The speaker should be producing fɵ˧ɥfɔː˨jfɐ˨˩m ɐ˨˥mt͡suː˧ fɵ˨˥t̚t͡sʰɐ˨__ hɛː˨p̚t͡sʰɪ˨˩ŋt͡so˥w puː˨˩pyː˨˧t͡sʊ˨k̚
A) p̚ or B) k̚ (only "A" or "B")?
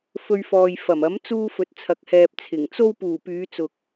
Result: B